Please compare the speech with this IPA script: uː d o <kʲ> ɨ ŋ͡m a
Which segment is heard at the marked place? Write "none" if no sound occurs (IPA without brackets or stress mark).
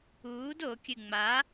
kʲ